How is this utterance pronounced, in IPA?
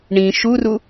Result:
ɳĩ ʃuru

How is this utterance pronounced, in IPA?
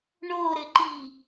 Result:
ɳoɾɘǃi

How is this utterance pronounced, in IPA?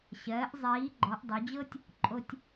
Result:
ɕɜː˩˧ʔzˤiː˩˧ ɡ͡ǃɔ˩˧ʔdˤo˩˧d͡ʑɤ˥tʲ | ǃʼo˧tʲ

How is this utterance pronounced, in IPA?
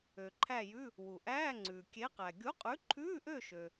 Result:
ø˩ǃʰæ˦˨jʉ˧˥˧ | wu˩ʔæː˧˥˧ŋ͡ǀʉː˩ kʲe˨˥qæ˩ ɡʲu˨˥qʼʉ˨˥ǃʰʉː˧˥˧ʔø˦˨ ʃø˩

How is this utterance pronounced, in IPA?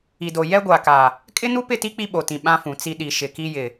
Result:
i˨do˨ jɛ˦ɡʷa˨ka˨ | kʼɪ˦nu˦pɪ˦˨ti˦ k͡pi˦ɓo˨tĩ˨ ɓã˦fũ˨t͡si˦ ɗi˨ ʃɪ˨ki˦jɪ˨

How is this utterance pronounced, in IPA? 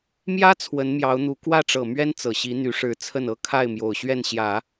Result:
mjä˥ t͡sʰwə˧˥nmjɑ˧˥ʊ̯n̪u˧˥ kwä˥˩ʈ͡ʂɤ˨˩ mɥɛ˥nt͡sɤ˨˩ɕi˧˥ n̪y˧˥ʂɻ̩˧˥t͡sʰə˥˩nɤ˥ kʰa˥˩ɪ̯mjo˨˩ʊ̯ɕɥɛ˥˩nɕjä˨˩˦

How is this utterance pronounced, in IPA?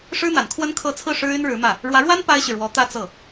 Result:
ʂɻ̩˥n̪a˨˩n kʰwə˥n kʰɤ˥˧ t͡sʰɹ̩˥˩ ʂɻ̩˥y˥nɻɻ̩˧˥mä˥˩ | ɻwä˧˥ɻwa˥n pa˥ɪ̯ɕy˨ ɻwɔ˧˥t̪ä˥˧ t͡sɤ˥˩

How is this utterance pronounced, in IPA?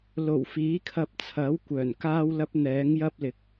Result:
lo˨˩wfiː˨˥kʰɐ˧p̚t͡sʰɐ˨˥w kʷœː˨˩nkaː˥wlɐ˥p̚ n̪ɛː˨˥ŋ jɐ˥p̚lɪ˨˥k̚

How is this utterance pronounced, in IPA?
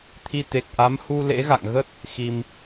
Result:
t̪ʰi˧t̪e˨˩k̚ʔa˨˦m hu˧ lḛ˧˥ɣa̰˧˨ŋɣə˦˥t̚ | xi˧m

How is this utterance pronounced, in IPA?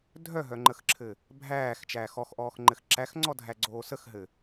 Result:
dʱœɦœŋ͡ǃəxǁʰɘ | bʱæːxt͡ʃæːx ɔxʔɔːxŋ͡ǃɘx ǁæxŋ͡ǀɔdʱæɡ͡ǀoː səxɦɘ

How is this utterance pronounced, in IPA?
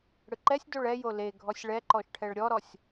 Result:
ɽɯǃɛsʲ doɭɛjo leɡʱɔsʲ ɭɛǃɔʃʈʰɛɭ ɾʲɔɾɔsʲ

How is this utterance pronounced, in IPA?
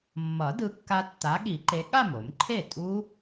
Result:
mːʌ˨˩˦ dɯ˨˥kːa˦˥ tːa˨˥ɠi˨˩˦ǃe˨˥ ɠa˥˩mo˨˩˦mǃʰe˥˩ tʼu˦˥

